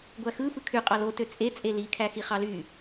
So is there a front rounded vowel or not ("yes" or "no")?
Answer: yes